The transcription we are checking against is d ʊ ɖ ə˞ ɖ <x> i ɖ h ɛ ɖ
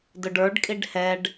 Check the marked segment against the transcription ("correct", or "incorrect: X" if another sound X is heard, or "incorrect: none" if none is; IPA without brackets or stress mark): incorrect: kʼ